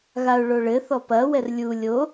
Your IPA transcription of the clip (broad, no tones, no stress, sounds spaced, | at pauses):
ɣ a ʊ̯ ɭ o ɭ ɘ θ ɔ p ɐ w ɛ r lʲ u lʲ o